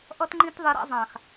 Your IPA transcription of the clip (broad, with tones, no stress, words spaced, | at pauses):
ʔʌ˦tŋ͡ǃĩ˦t ðˤi˧ɾa̰˦ zˤã˨x